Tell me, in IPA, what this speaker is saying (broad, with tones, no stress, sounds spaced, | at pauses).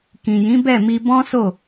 k ĩ˨ j ĩ˨˦ b ɛ˦˨ m i˧ b ɔ̃˦ s o˦˨